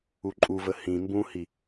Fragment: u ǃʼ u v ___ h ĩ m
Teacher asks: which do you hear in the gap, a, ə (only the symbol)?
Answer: ə